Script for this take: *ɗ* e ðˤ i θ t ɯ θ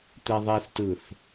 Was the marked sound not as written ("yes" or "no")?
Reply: yes